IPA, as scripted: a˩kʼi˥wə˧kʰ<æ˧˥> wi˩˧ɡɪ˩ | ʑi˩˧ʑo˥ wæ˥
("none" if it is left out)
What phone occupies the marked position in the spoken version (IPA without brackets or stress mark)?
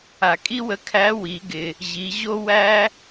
æ˧˥